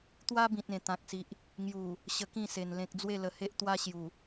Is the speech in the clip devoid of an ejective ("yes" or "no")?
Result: yes